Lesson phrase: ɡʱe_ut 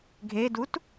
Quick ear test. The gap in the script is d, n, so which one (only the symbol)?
d